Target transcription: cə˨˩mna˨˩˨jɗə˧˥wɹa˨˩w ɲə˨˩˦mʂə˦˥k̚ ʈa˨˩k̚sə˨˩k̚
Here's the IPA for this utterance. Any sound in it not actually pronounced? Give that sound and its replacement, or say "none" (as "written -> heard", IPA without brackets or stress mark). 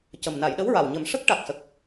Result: none